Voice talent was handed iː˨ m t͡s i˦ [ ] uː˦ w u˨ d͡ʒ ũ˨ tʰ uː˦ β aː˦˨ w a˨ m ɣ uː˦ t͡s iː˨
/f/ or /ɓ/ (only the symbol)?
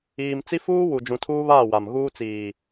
f